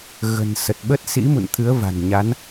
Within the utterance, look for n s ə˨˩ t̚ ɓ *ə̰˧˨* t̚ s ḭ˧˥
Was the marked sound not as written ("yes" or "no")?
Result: yes